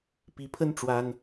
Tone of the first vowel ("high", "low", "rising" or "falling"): rising